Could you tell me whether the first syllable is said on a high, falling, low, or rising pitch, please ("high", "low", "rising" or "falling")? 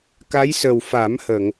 rising